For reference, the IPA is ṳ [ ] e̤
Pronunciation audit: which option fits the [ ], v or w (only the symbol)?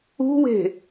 w